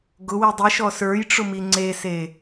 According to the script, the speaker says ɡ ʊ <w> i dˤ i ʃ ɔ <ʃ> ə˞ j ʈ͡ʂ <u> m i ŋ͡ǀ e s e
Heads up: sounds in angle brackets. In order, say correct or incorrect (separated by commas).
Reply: correct, incorrect, incorrect